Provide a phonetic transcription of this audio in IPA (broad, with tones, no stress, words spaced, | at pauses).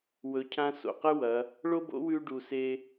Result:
wɵ˩˧cʰã˧ so̰˩qɨ˥wɐ˩˧ | ɭo˥ bo̰˧˥wʉ˧ ɖu˩se˧